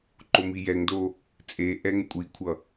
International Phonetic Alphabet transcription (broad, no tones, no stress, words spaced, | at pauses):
ǃomijɛŋdo | t͡sʼeʔɛŋ kʷʼikʷʰʌ